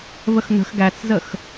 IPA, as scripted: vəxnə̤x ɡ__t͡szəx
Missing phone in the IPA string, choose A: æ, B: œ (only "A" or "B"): A